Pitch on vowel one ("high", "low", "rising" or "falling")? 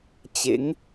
rising